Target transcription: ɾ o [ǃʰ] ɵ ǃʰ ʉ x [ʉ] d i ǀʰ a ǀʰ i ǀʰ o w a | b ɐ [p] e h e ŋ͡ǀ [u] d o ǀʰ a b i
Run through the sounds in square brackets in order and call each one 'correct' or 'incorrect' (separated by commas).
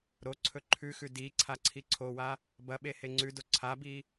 incorrect, correct, incorrect, incorrect